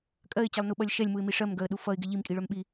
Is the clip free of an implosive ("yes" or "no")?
no